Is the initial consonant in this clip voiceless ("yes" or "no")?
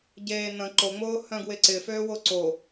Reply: no